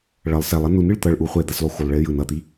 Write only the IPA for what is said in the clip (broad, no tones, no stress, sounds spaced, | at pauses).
ɭ ʌ lˠ s ɛ lˠ ʌ n u n ɯ ɭ t̪ ʌ ɭ ʔ u χʷ ɛ d̪ a s lˠ u x u lˠ ɭ e j ɯ n ʌ t̪ i